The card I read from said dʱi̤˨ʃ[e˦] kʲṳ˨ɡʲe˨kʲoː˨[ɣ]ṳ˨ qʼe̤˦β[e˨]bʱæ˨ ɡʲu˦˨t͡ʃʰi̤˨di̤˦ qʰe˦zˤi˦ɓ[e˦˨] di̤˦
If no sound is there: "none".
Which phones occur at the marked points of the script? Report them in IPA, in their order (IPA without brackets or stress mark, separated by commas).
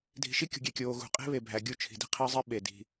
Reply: i˦, ɣ, e˨, e˨